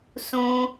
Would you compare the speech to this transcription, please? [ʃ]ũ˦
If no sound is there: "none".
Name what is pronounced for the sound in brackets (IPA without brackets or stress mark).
s